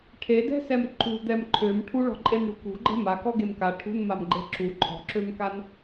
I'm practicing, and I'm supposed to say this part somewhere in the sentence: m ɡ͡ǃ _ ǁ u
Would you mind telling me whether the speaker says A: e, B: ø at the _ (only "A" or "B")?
A